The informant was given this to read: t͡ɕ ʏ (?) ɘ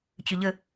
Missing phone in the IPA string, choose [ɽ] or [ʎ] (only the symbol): ʎ